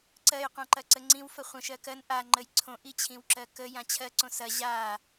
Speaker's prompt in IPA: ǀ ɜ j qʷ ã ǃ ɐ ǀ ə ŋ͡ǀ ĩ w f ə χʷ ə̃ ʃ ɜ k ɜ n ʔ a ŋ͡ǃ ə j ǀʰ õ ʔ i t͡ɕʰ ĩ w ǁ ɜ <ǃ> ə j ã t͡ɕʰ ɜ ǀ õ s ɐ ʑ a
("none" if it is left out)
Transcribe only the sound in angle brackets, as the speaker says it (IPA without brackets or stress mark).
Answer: k